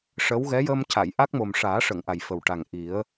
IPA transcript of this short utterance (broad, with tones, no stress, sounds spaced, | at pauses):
ʂ ə˧˥ w ɣ ɛ˧˥ j əː˧ m c a˨˩˨ j ʔ a˦˥ k̚ m o˨˩ m ʂ aː˨˩˦ ʂ ə˨˩˨ ŋ ʔ a˨˩ j f ə˨˩ w ʈ a˨˩ ŋ ʔ i˨˩˦ ə̯